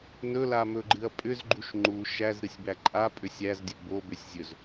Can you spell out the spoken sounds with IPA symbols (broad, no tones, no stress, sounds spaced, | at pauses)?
n ɵ l a m ɵ ɡ͡ǃ ɨ ɐ̯ pʼ ʏ z ɡ͡ǃ u ʃ ŋ͡ǃ u ʃ æ z ɾ ɨ sʲ b æ ǃʼ a pʼ ʏ sʲ æ z dʲ ɵ b o b ʏ sʲ zʲ ɵ z